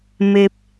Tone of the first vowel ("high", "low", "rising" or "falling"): low